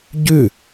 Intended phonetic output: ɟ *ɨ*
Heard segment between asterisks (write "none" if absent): ʉ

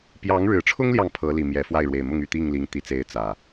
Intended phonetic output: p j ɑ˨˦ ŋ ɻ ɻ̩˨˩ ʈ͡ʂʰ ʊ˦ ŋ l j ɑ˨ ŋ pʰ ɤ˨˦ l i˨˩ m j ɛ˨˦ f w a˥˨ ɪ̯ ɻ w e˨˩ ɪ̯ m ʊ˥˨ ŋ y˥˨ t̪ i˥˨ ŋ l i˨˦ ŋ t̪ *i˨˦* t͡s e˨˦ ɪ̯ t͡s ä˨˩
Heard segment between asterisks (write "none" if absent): i˨˩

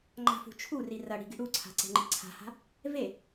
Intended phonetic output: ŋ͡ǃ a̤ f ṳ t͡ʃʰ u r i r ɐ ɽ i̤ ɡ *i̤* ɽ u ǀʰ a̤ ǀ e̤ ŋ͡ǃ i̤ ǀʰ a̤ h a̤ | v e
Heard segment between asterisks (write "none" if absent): i̤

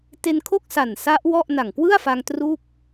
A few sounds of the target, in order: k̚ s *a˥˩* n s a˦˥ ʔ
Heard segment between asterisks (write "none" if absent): a˨˩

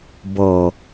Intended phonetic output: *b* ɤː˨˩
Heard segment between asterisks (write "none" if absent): b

